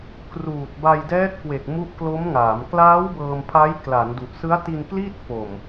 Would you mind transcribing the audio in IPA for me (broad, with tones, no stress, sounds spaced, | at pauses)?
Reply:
k r uː˨˩ t̚ b a˧ j d ɛː˦˥ t̚ k w e˨˩ k̚ m u˦˥ ʔ k l o˦˥ m ŋ aː˩˦ m k l aː˦˥ w b ɤː˧ m pʰ a˦˥ j k l a˩˦ n d u˨˩ ʔ s ɯ˦˥ a̯ t i˧ n k l iː˥˩ t̚ f o˨˩ m